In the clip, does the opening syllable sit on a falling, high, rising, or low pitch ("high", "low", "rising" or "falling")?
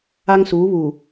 high